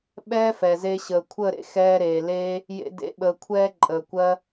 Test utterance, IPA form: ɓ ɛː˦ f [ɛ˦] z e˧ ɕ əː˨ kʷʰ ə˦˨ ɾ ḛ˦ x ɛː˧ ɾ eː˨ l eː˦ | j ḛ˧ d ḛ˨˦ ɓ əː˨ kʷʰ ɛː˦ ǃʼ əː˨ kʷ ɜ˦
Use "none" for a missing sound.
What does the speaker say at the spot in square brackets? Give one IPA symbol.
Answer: ɛ˨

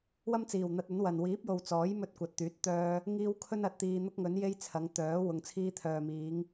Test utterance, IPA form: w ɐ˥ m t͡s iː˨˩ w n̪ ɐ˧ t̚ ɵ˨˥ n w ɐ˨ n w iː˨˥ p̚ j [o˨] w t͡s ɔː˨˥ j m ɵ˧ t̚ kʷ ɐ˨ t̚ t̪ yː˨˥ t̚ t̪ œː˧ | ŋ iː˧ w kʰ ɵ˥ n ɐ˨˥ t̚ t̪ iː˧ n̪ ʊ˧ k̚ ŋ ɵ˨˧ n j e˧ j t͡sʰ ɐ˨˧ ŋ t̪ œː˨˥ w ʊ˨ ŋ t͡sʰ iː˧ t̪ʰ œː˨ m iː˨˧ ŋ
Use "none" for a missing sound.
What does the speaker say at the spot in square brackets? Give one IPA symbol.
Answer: o˨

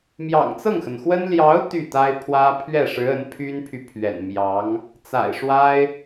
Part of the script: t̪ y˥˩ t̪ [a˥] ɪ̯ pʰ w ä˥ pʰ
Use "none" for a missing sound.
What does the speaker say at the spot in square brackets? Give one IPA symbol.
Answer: a˥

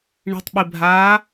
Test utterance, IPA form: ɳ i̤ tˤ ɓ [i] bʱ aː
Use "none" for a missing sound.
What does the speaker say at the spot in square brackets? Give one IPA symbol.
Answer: i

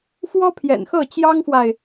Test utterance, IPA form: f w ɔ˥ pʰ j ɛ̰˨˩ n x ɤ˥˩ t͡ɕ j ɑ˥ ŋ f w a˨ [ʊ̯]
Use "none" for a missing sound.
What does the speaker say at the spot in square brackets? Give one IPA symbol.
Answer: ɪ̯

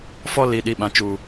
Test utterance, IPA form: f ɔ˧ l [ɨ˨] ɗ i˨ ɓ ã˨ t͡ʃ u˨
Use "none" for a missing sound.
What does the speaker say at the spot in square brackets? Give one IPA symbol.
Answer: i˨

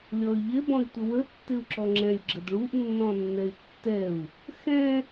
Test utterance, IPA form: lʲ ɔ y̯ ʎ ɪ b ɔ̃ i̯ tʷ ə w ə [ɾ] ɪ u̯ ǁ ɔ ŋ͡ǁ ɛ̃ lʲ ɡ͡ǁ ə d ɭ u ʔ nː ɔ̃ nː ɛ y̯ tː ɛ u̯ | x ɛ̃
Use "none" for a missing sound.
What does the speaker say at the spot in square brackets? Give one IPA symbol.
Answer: tː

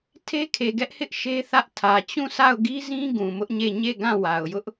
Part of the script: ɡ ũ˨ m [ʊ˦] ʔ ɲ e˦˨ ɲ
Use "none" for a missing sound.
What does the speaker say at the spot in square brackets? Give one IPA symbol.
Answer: ʊ˦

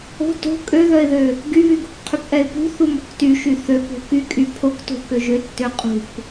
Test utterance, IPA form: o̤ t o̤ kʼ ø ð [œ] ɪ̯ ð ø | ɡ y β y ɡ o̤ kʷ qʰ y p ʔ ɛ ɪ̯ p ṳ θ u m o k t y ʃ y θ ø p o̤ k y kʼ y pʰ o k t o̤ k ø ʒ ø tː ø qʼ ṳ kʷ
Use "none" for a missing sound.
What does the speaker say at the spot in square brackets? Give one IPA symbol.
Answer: œ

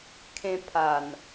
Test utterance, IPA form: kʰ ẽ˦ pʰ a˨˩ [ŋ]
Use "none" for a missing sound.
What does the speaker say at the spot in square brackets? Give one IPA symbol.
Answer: n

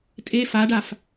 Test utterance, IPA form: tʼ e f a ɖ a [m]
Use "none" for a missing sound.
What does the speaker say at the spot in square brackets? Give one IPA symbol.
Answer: f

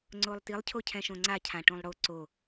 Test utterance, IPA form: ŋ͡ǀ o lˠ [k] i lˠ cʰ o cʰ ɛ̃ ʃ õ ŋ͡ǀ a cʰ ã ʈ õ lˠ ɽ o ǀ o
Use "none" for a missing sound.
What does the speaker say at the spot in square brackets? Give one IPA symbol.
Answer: t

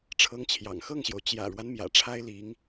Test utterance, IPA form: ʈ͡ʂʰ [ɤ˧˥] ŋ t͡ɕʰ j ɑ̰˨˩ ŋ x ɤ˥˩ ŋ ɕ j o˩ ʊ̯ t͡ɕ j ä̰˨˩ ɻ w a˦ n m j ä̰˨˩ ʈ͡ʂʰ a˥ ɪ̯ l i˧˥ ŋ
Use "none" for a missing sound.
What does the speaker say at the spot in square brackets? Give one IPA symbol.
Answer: ɤ˧˥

